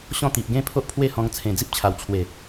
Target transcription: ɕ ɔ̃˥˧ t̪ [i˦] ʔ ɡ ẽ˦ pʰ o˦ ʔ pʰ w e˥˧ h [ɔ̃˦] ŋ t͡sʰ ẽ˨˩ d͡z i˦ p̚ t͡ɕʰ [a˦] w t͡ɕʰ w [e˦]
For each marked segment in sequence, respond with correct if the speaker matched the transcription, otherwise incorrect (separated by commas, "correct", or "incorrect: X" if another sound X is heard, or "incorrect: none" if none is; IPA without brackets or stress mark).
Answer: incorrect: i˨, incorrect: ɔ̃˧, incorrect: a˨˩, incorrect: e˨˩